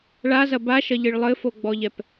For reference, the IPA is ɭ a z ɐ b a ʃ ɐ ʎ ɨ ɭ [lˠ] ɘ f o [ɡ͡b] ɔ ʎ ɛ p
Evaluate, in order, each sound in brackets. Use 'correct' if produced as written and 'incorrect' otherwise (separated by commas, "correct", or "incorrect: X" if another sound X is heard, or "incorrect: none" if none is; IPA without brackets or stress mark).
correct, correct